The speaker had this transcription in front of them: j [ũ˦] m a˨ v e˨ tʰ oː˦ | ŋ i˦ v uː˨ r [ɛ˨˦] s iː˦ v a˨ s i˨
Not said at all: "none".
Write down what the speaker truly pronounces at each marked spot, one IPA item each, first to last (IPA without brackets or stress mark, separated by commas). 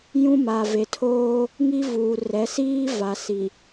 ũ˦, ɛ˨˦